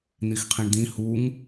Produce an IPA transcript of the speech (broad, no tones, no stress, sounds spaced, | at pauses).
n̪ i x qʰ ĩ ɳ d̪ ĩ h u ŋ